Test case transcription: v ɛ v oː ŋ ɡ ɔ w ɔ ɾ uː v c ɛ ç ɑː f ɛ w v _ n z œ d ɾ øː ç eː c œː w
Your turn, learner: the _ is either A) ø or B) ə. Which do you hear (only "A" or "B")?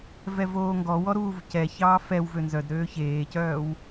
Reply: A